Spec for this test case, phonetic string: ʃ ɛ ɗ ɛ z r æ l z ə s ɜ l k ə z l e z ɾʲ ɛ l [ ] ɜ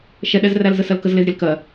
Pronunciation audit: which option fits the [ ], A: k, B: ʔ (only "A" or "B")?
A